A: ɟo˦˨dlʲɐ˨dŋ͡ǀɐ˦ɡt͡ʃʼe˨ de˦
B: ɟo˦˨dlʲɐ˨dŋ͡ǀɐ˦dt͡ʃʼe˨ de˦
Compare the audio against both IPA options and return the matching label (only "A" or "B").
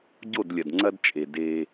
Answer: B